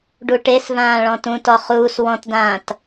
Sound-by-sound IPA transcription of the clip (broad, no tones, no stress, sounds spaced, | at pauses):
ɖ u ʈ e s v ãː ɭ ɔ̃ t ũ t ɔ χ uː s w ɔ̃ t d ãː t